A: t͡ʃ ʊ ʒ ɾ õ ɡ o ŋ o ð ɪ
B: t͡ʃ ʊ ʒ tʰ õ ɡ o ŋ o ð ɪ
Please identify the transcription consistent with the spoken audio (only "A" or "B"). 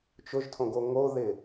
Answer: B